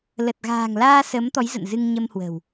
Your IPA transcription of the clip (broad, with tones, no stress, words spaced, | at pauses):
lə˨˩t̚ɣa̤ː˨˩ŋlaː˧ səː˨˦mt̪ɔ˨˦jzə̰˧˨n zɨ˧ŋɲə˧mhwə̤˨˩w